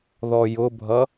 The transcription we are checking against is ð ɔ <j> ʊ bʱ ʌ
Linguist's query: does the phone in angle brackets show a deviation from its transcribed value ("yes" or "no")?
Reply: no